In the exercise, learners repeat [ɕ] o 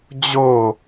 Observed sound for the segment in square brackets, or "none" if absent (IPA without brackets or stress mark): d͡ʑ